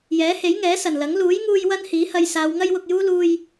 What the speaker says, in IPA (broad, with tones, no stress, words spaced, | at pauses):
jɛː˨˥he˨˥jŋɛː˨˥ sɐ˨˩nlɐ˨˥ŋ luː˨˥jŋuː˧j wɐ˥nhiː˨˥hɐ˧j saː˨˧wŋɐ˥jwʊ˧k̚juː˥ luː˧j